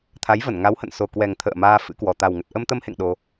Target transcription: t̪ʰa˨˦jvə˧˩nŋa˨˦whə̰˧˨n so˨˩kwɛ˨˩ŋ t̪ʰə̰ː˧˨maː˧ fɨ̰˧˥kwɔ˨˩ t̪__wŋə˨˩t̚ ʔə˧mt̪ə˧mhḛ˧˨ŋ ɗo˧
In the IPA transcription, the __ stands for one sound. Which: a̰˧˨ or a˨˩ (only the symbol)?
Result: a˨˩